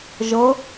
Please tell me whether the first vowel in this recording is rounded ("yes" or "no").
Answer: no